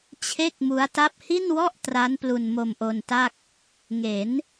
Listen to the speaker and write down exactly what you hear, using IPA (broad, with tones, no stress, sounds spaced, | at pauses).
t͡ɕʰ e˥˩ k̚ m u˦˥ a̯ t a˦˥ p̚ h i˥˩ n w ɔ˥˩ ʔ t r a˦˥ n p l u˧ n m o˧ m ʔ o˧ n t a˥˩ k̚ | ŋ e˩˦ n